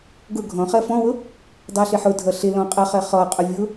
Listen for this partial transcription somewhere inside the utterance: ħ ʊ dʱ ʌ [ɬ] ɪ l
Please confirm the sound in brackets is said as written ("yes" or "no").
yes